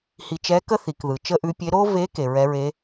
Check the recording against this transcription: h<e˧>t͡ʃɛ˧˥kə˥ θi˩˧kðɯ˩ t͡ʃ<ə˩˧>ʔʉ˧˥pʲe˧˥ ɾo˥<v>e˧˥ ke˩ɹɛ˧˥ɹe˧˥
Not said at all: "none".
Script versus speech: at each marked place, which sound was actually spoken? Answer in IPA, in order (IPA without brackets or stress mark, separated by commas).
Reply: i˧, ə˥, v